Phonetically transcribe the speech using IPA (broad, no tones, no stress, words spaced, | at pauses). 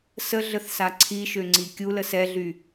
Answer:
səɮəθsa ǀʰiʃøŋ͡ǀi kʲulə sɛɮy